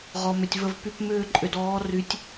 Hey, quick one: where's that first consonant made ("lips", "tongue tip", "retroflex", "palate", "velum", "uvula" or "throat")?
uvula